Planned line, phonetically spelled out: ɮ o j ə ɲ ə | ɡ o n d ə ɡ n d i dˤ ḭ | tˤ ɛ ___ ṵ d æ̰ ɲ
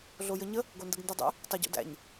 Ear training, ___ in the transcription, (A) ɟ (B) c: A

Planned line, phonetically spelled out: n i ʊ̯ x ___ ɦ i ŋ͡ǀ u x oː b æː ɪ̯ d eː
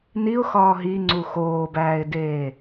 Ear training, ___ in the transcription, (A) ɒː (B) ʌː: A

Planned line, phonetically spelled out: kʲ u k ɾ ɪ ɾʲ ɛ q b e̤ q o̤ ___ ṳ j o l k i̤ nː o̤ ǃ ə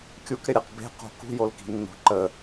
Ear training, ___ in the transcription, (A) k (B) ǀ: A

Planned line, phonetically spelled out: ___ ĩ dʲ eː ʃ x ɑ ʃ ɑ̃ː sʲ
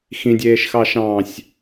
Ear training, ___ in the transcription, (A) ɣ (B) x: B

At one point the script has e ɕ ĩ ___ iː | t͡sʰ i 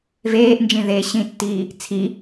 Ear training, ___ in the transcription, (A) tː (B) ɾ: A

